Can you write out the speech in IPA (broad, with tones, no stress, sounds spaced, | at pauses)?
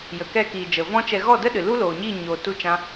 j ə˨ k ɛ˧ k iː˨ d͡ʒ ə˨ v ɔ̃˦ t͡ʃ ɛ˧ ɣ ɔ˦˨ d ə˦ ɗ ɨ˨ l u˦ l oː˨ ɲ i˦˨ ɲ oː˧ t u˦ t͡ʃ ã˦